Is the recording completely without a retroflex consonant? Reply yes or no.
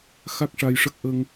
no